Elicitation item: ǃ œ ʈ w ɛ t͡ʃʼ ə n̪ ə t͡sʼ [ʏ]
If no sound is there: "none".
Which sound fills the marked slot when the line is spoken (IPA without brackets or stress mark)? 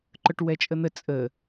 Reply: ə